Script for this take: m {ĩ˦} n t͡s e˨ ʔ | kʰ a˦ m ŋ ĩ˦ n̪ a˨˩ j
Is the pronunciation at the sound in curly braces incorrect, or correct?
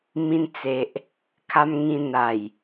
incorrect